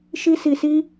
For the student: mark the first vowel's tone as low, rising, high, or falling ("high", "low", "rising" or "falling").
high